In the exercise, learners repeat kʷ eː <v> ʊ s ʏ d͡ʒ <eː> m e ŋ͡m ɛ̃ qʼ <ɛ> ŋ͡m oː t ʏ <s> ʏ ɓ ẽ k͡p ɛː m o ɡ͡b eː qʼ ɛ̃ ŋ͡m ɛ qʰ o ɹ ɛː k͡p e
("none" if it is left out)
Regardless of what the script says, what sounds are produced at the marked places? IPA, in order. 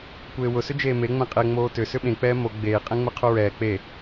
w, eː, ɛ, s

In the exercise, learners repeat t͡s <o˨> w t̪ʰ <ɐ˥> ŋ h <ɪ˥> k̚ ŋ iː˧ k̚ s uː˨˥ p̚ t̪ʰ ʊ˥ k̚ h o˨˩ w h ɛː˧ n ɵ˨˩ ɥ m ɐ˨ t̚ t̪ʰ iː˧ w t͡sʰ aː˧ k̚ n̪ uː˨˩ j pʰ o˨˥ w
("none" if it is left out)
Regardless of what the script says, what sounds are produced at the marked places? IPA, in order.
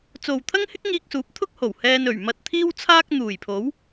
o˨, ɐ˥, ɪ˥

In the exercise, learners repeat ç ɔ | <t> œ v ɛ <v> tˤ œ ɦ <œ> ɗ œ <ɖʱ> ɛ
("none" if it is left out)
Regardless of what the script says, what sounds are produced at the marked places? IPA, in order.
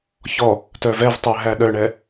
t, v, æ, ɳ

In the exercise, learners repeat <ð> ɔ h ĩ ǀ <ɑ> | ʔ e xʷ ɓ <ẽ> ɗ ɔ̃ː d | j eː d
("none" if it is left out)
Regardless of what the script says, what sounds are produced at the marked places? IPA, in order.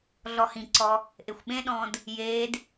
ɮ, ɔ, ẽ

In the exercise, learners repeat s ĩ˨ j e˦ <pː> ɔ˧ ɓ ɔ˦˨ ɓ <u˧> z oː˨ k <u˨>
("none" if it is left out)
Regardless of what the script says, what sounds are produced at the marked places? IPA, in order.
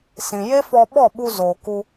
f, u˧, u˧

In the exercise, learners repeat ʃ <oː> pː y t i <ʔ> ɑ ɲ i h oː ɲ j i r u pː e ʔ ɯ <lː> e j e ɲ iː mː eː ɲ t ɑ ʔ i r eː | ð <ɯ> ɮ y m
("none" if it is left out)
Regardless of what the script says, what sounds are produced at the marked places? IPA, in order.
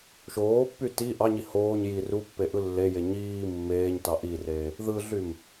oː, ʔ, lː, ɯ

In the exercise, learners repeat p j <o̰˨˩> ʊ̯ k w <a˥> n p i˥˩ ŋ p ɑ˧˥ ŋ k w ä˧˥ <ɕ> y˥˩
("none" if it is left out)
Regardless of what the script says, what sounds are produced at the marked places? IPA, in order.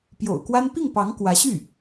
o̰˨˩, a˥, ɕ

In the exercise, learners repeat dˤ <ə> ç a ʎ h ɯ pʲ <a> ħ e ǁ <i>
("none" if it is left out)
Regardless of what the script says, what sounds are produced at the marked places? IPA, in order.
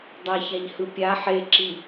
a, a, i

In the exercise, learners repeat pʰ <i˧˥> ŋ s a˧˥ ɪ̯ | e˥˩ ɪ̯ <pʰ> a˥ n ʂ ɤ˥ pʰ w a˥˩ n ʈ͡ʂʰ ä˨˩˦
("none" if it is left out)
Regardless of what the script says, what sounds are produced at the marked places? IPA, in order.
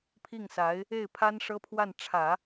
i˥˩, pʰ

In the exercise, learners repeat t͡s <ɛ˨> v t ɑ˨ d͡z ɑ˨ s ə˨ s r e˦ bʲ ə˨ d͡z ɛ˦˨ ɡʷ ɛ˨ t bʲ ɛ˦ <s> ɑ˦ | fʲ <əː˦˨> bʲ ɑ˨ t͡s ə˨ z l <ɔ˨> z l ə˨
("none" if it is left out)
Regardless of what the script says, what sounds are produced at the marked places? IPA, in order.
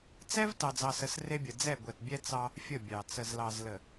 ɛ˦, t͡s, ə˦˨, ɑ˨

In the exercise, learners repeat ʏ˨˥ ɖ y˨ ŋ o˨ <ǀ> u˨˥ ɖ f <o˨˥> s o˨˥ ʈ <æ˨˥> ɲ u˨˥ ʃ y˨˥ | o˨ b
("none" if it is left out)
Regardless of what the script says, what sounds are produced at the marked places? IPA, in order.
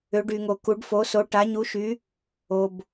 k, o˨˥, a˨˥

